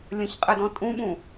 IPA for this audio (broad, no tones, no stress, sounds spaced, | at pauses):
lʲ ə̃ ç qʼ ɛ d ɔ̃ tʼ ũ ɓ ũ